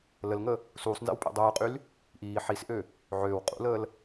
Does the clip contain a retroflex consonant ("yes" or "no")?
no